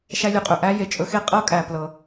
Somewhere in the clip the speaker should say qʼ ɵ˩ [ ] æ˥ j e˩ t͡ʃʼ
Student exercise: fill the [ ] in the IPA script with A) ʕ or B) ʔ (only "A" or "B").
B